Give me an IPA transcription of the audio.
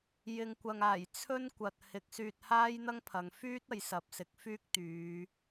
j ɪ˨ ŋ kʷ ɐ˨ ŋ aː˨˩ j t͡sʰ ɵ˥ n kʷ ɐ˨ t̚ h ɪ˨˥ k̚ s yː˧ t̚ h aː˥ j n̪ ɐ˥ ŋ pʰ ɐ˨ ŋ f yː˥ t̚ ɐ˨˧ j s ɐ˨ p̚ s ɪ˨˥ k̚ f yː˥ k̚ t̪ yː˨˧

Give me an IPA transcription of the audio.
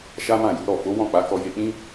ʃ a˦ m ã˦˨ j u˨˦ ɾ ɔ˦˨ f o˨˦ w ɔ̃˦˨ k͡p a˨˦ k ɔ˧ j e˧ k͡p ĩ˦

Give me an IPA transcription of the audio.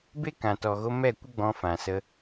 b e˦ k ã˨ t ɔ˨ ɣ o˧ m ɛ˦˨ kʷ ə˦ ɡ͡b ɔ̃˧ f ã˨ s ə˧

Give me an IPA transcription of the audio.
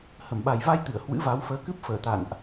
h ə˧˩ m ɓ a˨˩ j v a˧ j t̪ ɨ˧˩ ə̯ h w ɨ̰˧˥ v a˨˦ w f əː˨˦ k ɨ˦˥ p̚ f əː˧˩ t̪ a̰˧˨ n ʔ

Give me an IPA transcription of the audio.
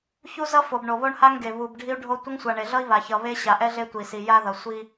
ç u˦ z ʌ˦ f o˨ b ɳ o˨ β o˦ ɳ h a˦ ŋ ɡ e˨ β u˨ b ɖʱ i˦ u̯ ɖʱ o˦ tʷ ʌ˦ ŋ sʷ a˨ ɳ e˨ ɮ ʌ˦ i̯ β a˨ ç ʌ˨ β e˦ ɕ a˨ ʔ ɛ˦ ɮ e˦ tʷ i˨ s i˨ j a˦ ð ʌ˨ sʷ i˦

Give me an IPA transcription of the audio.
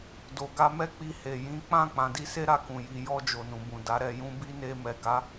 d o˨ ɡ a˧ m ɛ˦ k͡p i˧ h e˨ j ĩ˨˦ k͡p ã˦˨ k͡p ã˨˦ d i˦ s e˦ ɾ a˧ k ũ˨ j i˨ j ɔ˧ d͡ʒ o˨ n ũ˨ b ũ˨ d a˨˦ ɾ ɛ˧ j ũ˦ b i˦ n e˧ m ɛ˨ ɡ a˨˦

